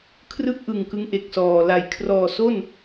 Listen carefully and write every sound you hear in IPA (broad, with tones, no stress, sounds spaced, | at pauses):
kʰ r ɯ˥˩ k̚ ʔ ɯ˨˩ ŋ k ɯ˦˥ ŋ ʔ e˨˩ k̚ s ɔː˨˩ l a˩˦ j kʰ r ɔː˨˩ s o˥˩ n